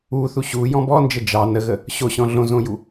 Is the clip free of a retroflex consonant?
yes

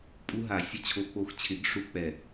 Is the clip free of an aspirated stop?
no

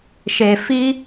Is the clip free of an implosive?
yes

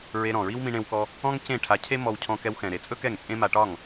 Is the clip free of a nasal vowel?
no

